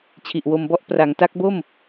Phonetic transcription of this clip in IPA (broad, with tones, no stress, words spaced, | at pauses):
t͡ɕʰi˨˩ʔwo˧mbɔ˥˩ʔ pra˩˦ŋta˦˥k̚bo˥˩m